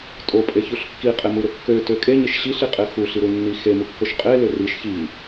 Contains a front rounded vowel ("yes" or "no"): yes